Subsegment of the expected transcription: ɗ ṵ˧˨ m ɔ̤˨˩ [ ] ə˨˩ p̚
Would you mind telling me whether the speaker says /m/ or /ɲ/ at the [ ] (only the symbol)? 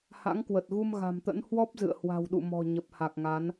ɲ